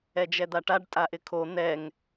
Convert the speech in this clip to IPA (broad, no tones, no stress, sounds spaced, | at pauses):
ɛ d͡ʒ ɛ d̪ a ʈ a ɖ tʼ a ʔ ɪ kʰ o n̪ ɛ ŋ